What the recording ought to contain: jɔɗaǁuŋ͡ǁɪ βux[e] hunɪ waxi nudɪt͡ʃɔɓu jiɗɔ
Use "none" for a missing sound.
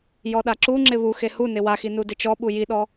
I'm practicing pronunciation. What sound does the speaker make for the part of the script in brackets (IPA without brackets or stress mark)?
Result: e